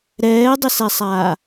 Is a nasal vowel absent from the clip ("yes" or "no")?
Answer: yes